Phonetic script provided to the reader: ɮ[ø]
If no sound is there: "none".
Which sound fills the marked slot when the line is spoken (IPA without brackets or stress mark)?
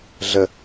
ə